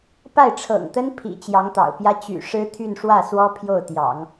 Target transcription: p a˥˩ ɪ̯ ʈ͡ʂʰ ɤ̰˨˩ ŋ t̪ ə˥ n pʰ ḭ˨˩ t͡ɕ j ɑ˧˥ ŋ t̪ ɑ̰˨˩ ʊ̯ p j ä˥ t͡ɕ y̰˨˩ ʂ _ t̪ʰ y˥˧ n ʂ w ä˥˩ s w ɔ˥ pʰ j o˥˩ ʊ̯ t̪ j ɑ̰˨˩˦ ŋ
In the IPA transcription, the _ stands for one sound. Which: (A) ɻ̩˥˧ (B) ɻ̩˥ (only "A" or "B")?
B